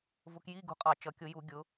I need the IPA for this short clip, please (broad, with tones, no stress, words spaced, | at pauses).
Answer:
vʊ˧kji˧˥˧ ɡṳ˧qʼɑ˧˩˧ t͡ʃʌ˩˧kʲʊ˧˩˧ju˧˩˧ ɡʲʊ˩˧